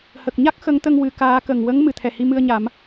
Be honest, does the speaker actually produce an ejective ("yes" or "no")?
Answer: no